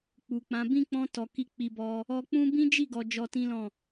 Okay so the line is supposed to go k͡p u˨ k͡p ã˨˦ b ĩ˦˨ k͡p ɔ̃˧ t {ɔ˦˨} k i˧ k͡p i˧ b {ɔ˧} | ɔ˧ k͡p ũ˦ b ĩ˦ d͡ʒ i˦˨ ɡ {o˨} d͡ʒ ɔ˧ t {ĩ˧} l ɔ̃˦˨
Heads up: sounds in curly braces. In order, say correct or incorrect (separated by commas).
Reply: incorrect, correct, incorrect, incorrect